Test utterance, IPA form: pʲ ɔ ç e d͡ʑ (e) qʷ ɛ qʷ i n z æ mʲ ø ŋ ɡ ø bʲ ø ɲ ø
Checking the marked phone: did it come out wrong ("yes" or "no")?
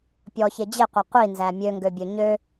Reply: no